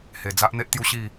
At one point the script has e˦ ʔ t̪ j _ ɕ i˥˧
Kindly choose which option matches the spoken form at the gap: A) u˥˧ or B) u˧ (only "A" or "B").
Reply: A